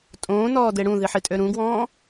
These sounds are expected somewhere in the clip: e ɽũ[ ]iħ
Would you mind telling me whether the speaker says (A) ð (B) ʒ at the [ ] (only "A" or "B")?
A